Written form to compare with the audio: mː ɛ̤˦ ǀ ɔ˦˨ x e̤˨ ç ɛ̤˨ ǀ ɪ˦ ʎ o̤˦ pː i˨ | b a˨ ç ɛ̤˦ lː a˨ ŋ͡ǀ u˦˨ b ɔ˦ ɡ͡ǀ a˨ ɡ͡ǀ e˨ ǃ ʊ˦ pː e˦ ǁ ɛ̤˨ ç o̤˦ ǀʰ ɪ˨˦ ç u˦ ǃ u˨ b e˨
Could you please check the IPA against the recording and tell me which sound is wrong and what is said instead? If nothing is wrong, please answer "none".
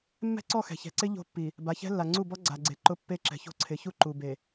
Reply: e̤˨ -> ɛ̤˨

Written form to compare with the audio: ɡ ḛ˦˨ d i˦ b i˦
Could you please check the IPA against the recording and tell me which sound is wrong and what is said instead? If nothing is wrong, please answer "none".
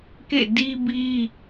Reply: ɡ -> k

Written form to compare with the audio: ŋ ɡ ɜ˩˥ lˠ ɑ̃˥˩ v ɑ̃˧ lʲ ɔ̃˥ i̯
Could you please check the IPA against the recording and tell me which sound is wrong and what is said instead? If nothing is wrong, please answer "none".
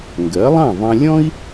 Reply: none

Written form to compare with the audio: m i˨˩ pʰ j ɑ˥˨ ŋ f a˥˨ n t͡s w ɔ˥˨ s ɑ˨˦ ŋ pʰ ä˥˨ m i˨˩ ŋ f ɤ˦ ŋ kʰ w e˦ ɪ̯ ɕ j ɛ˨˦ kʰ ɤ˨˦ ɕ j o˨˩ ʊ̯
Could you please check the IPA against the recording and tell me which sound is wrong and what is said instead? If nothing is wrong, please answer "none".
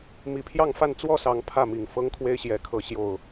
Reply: none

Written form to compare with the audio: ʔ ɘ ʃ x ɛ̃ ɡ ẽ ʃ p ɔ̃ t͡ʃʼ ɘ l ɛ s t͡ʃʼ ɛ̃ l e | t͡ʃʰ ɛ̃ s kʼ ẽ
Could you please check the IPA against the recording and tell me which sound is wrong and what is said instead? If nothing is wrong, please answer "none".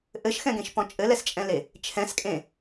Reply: none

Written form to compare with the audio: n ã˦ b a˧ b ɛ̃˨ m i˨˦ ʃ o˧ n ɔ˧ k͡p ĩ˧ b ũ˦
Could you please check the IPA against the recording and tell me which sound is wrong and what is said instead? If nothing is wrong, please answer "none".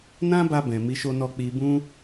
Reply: ĩ˧ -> i˧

